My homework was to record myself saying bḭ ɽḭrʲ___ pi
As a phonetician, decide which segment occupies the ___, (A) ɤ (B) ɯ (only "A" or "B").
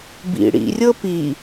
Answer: A